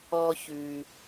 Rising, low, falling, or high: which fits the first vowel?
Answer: high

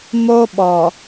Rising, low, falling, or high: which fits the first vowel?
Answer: high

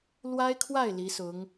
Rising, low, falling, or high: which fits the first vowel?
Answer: high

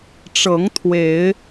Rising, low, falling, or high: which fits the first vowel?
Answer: rising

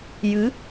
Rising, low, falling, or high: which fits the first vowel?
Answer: rising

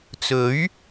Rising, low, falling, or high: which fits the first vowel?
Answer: rising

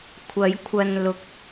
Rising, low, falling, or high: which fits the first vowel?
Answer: rising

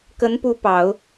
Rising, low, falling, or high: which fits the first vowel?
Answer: rising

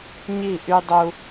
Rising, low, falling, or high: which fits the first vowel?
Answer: falling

